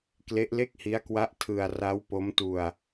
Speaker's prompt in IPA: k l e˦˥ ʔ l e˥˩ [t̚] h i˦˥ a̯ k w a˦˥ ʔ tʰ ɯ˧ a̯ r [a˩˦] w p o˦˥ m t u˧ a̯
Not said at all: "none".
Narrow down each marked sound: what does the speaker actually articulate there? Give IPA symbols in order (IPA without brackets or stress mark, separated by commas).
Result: k̚, a˦˥